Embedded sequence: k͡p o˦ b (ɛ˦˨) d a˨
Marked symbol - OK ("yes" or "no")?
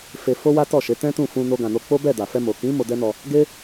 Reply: yes